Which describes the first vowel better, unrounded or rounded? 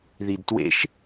unrounded